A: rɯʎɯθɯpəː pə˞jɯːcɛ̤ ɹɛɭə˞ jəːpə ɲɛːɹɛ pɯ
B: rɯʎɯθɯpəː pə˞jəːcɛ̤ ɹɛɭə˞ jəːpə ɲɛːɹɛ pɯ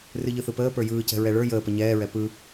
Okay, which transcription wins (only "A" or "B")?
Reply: A